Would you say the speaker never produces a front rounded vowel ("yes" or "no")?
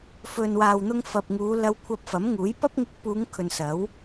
yes